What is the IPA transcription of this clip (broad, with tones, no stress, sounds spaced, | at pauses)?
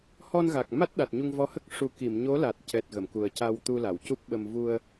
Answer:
h ɔ˧ n ɣ a˨˩ k̚ m a˦˥ t̚ ɗ a˨˩ t̚ ɲ u˧ ŋ v ɔ˧˥ h ə˦˥ k̚ ʂ u˨˩˦ k i˨˩˨ m ɲ o˧˥ l a˨˩ t̚ c ɛ˨˩ t̚ ɣ ə˨˩˨ m k u˨˩ ə̯ c a˧ w t̪ u˧ l a˨˩˨ w c u˦˥ p̚ ɓ ə˧ m v u˧ ə̯